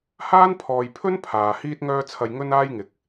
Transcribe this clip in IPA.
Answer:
h aː˥ n pʰ ɔː˨ j pʰ ɵ˥ n pʰ aː˨ h iː˧ t̚ ŋ œː˧ t͡sʰ ɐ˨ j ŋ ɵ˥ n aː˥ j ŋ ɪ˨ k̚

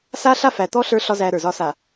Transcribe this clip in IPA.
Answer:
s a˦ ɬ a˦ f æ˨ t̪ ɔ˦ ɬ ə˞˦ ɬ ɒ˦ z æ˦ ɾ ə˞˨ z ɒ˦ s a˨

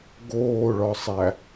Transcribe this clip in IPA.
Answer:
ɡ oː ɭ ɒ sˤ æ

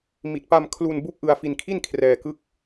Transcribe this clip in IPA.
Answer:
m i˨˩ t̚ p a˧ m kʰ l u˧ n b u˦˥ k̚ ʔ ɯ˧ a̯ f i˧ n kʰ i˥˩ n kʰ r ɛː˧ k ɯ˥˩ k̚

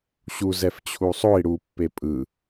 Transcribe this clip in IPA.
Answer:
ɕ u z ɛ f t͡ɕʰ u sˤ o i̯ ɽ u pː e pʼ ɯ

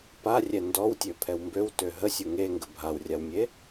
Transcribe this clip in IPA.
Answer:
p a rʲ ɛ n d ɔ w tʲ ø pʰ ɛ w m b ø w t ø ɦ ə sʲ u ŋ e ŋ ɡ ə bʱ a w rʲ a w mʲ e

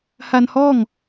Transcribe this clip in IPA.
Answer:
h a˧ n h ɔː˥˩ ŋ

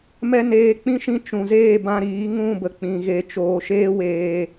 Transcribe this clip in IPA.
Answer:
m ɛ˦ n eː˧ k͡p ĩ˦ ʃ ĩ˦ t͡ʃ ũ˨ z eː˦˨ b ã˧ ɾ iː˨˦ ŋ ũ˦˨ b ə˨ k͡p ĩ˨ ɣ e˨ t͡ʃ oː˨ ʃ eː˦ w eː˧

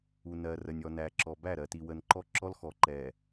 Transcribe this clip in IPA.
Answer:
u˨ n ɜ˨ r ə˨ nʲ ɔ˨ n æ˨ ǁ ɔ˨ b æ˦˨ ɾ ɜ˨ t i˨ w ə˨ n ǃ ɔ˦ ǁ ɔ˦ l x ɔ˨ ǃ ɛ˨

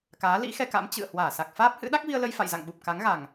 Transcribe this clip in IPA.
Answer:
k aː˨˦ l ḭ˧˥ x ɛ˧ k a̰˧˥ m t͡ɕ ɨ̰˧˨ ə̯ h w aː˧˩ s a˨˩ k̚ f aː˦˥ p̚ h ɨ̰˧˥ ɗ a˦˥ k̚ v i˧ ə̯ l ə˧ j f a̰˧˨ j z a̰˧˨ ŋ ɓ u˨˩ p̚ k a˨˦ ŋ ɣ a˨˩ ŋ

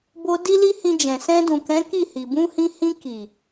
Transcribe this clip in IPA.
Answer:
b o˧ d i˦ l i˦ h ĩ˧ d͡ʒ ɛ̃˨ s ɛ̃˧ d ũ˨ k ɛ̃˨˦ k i˦˨ h i˨ b ũ˧ h ĩ˧ h ĩ˧ k i˨

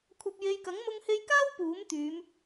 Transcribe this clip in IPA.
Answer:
kʷʰ ɐ˧ p̚ j e˧ j k ɐ˨˥ ŋ m ʊ˧ ŋ h e˧ j k aː˥ w p uː˨˥ m t̪ yː˨˧ m

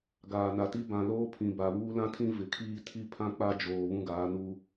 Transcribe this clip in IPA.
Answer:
ɡ aː˨ n a˨ t i˦ b ã˨ l oː˦ pʰ ĩ˨ b a˨ β uː˦ l ã˦ tʰ ĩ˦ v ɪ˨ kʰ iː˦ tʰ i˦ pʰ ã˦ k͡p a˦ d͡ʒ oː˨ β ũ˦ ɡ aː˨˦ n u˦

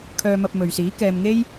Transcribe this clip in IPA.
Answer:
kʰ œː˧ m ɐ˧ p̚ m ɵ˨ ɥ s iː˨˥ k ɛː˧ m ŋ e˥ j

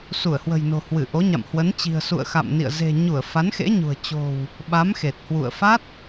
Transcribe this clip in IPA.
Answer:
s u˧˩ ə̯ h w ə̤˨˩ j n o̤˨˩ h w ɨ˧˩ ʔ o˨˦ ɲ a̰˧˨ m h w ə˨˦ n t͡ɕ i̤˨˩ ə̯ s ṵ˧˨ ə̯ x a̰˧˨ m n ḭ˧˨ ə̯ z e̤˨˩ ɲ u˧˩ ə̯ f a˨˦ n x ḛ˧˥ ɲ ṳ˨˩ ə̯ t͡ɕ o̤˨˩ w | ɓ a˨˦ m x e˨˩ t̚ h w ṵ˧˨ ə̯ f a˦˥ t̚

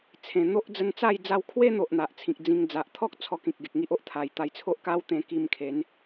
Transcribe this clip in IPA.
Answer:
t͡sʰ ẽ˨˩ n̪ o˦ ʔ d͡z ə˧ n t͡s a˥˧ j d͡z a˧ w kʰ w e˦ n̪ o˨ ʔ n̪ a˨ ʔ t͡sʰ ĩ˨ k̚ d͡z ĩ˧ ŋ d͡z a˨ ʔ t̪ʰ ɔ˦ k̚ t͡sʰ ɔ˧ k ĩ˨ k̚ ɡ e˨ k̚ ŋ i˦ ʔ o˦ ʔ t̪ʰ a˨˩ j t̪ a˧ j t͡sʰ o˦ ʔ k a˦ w t̪ ẽ˧ k i˧ m kʰ e˨˦ n

